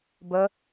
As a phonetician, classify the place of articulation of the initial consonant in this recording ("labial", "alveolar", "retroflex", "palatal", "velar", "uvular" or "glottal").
labial